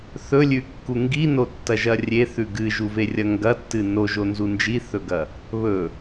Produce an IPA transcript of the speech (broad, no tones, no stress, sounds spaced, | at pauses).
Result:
θ ɵ lʲ ʉ kː u ŋ ɡ i n o tː ɐ ʒ ɐ rʲ e θ ʉ ɡ ɨ ʒ u v e rʲ ɐ ŋ ɡ ɐ tː ɨ n o ʒ o n z u n d͡ʒ i θ ɵ ɡ ɐ | β ɵ